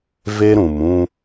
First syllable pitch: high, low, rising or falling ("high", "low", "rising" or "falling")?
high